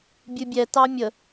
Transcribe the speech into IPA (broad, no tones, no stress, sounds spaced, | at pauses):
bʲ ɨ bʲ ɛ t ɑ mʲ ə